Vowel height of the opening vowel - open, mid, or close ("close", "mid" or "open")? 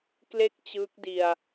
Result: mid